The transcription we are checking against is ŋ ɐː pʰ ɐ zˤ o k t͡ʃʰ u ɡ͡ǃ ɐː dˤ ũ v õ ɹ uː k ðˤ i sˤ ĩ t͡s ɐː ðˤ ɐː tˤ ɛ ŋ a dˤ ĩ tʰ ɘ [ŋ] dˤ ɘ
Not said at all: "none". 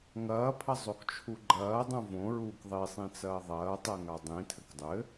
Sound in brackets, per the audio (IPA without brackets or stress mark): k